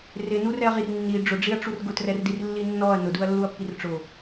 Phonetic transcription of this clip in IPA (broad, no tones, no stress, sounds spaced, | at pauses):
r ɪ n u r ɛ ɐ̯ ʁ i r nː i ɖ͡ʐ ʊ ɖ͡ʐ i ɐ̯ ʈ͡ʂ u r ɡ ʊ t r ɛ r d i r lː i nː ɔ ɐ̯ n ʊ d u ɐ̯ lː u ɐ̯ pː i r ʈ͡ʂ ʊ